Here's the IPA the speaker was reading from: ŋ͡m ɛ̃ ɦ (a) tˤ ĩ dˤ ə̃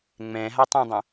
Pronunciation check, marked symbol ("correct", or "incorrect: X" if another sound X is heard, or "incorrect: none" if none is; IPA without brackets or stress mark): correct